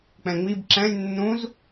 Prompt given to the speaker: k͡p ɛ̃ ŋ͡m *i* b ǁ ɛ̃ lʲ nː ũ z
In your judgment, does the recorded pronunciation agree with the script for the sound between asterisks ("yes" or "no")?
yes